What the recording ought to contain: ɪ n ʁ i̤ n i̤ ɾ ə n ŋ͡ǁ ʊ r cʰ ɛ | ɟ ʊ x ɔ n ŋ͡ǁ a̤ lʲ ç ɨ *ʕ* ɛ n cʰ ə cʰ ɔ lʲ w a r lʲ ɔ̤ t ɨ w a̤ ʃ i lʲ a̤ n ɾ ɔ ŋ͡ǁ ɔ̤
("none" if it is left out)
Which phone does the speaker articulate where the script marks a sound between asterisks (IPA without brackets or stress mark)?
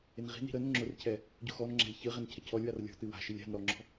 ʁ